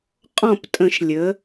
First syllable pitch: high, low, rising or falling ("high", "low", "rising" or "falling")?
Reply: falling